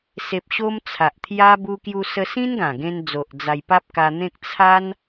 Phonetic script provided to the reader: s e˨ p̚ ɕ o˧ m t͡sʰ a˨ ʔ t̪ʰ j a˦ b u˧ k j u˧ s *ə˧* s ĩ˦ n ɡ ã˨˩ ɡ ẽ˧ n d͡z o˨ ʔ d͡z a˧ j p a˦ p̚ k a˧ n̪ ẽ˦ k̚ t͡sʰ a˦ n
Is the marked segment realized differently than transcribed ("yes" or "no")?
no